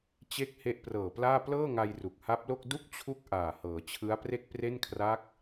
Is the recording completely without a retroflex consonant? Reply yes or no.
yes